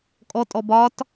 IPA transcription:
kʼɔtʼɔb ɒt

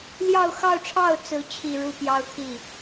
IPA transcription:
ljɑ˥˧ʊ̯xɑ˥˧ʊ̯ʈ͡ʂʰɑ˥˩ʊ̯ t͡sɹ̩˥t͡ɕʰi˥˧ ɻu˥˩pjɑ˥ʊ̯t̪ʰi˥˩

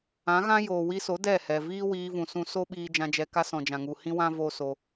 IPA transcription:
ã˨˦ɣã˦ joː˨wi˧so˨˦ dɛ˦˨hɛ˨ viː˦wiː˧vũ˨sũ˧ so˦ɓiː˧ d͡ʒã˧d͡ʒɛ˧ka˦ sɔ̃˨d͡ʒã˨ŋu˨ hĩ˦wã˦ vo˦so˧

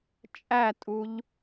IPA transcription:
t͡ʃʼætʼuʎ

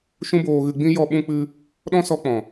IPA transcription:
ʃũ˦boː˧ɣɨ˧ɡ͡bĩ˦ jɔ˧ɓũ˧k͡pɨ˧ | ɗɔ̃˦sɔ˧k͡pɔ̃˨

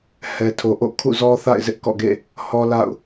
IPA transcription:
hɛ˨tʰo˨ʔo̰˦˨ kʰṵ˦˨zɔ˦θa̰˦˨ɪ̯ zɪ˦ʔkɔ̰˦˨ɡḛ˦˨ | hɔ˦la̰˦˨ʊ̯

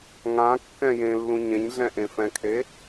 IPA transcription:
ŋãkːɛ̃ jẽlːũ ɲẽɲɮɛ̃ ʔẽfɛ̃kʰe

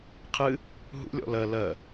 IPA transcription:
qʰɨ | ɦṵlʲɔ̰ lɜ lɜ

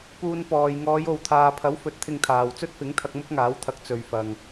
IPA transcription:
puː˧npɔː˨j ŋɔː˨˧jo˨wt̪ʰaː˨pʰɐ˨˥w fɵ˨˥t̚t̪ʰɪ˧ŋt̪ʰaː˨w t͡sɵ˥t̚fɪ˨˥ŋt̪ʰɐ˧k̚ mʊ˥k̚ŋaː˨˥wt̪ʰɐ˨˥k̚ t͡sɵ˨˧ɥfɐ˨ŋ

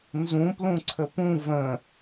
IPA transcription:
nzũplũ ǀʰəpũ və̃

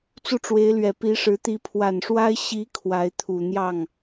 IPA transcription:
t͡su˥˩ʈ͡ʂwe˧˥ɪ̯lɥɛ˨˩ pi˧˥ʂɻ̩˧˥ t̪i˧˥pʰwa˨˩nʂwa˥ɪ̯ ɕi˧˥ kʰwa˧˥ɪ̯t̪ʰu˨˩ n̪jɑ˥˩ŋ

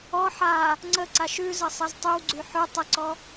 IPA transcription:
ɔ ħa | ŋ͡ǀəǀaʃ ʉzəsˤez tˤywɡ͡ǀy ħʉ tˤəǀɔ

